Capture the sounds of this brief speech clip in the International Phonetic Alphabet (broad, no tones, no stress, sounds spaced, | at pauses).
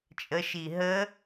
t͡ʃʼ ə ʃ i ɦ ə